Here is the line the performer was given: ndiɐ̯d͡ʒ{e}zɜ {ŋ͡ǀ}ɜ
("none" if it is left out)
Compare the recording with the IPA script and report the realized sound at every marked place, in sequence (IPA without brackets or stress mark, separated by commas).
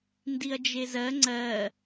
e, ŋ͡ǀ